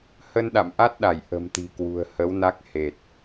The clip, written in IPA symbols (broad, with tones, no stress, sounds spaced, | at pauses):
h ə˧ n ɗ a̰˧˨ m ʔ a˦˥ t̚ ɗ a˧˩ j ʔ ə̤˨˩ m t̪ i̤˨˩ k w ṳ˨˩ ə̯ h ə˨˦ w n a˦˥ k̚ h e˨˩ t̚